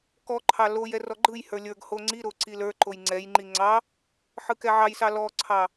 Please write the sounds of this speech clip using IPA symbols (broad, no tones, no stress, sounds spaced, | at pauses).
k ɔ ǃʰ ɑ l o j ɛ r ɔ ɡ͡ǃ ɯ j h ə˞ lʲ ə˞ ɡ h o ŋ͡ǀ i ɾ o ǀ i l ə˞ ǃ o j ŋ͡ǀ ɛ j ŋ͡ǃ i ŋ͡ǀ ɑ | ħ ɯ k ɛ ʕ ɑ j s ɑ l ɔ ǀʰ ɑ